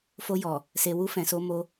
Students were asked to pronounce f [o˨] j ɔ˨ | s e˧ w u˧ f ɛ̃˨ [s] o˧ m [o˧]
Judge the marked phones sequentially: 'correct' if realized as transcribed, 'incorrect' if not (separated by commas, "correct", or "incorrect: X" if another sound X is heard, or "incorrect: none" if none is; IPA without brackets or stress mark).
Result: incorrect: o˧, correct, correct